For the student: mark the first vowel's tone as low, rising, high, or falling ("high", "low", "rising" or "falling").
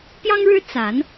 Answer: high